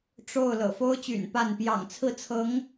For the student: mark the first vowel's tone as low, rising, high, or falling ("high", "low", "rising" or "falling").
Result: falling